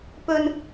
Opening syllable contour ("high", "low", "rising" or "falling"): high